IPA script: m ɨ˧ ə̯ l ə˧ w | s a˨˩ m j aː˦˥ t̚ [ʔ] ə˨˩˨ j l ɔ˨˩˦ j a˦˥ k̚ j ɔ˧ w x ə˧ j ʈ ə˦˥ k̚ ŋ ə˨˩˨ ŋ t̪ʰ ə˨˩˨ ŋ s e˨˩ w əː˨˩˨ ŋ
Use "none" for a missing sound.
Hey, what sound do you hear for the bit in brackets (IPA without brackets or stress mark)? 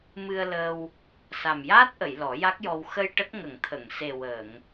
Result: ʔ